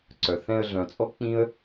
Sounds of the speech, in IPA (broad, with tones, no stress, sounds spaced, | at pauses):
ǀ œ˨ θ ɛ̃˧ ə̯ ɮ œ̃˨ t͡sʼ ɔ˦ k͡p ĩ˦ ə̯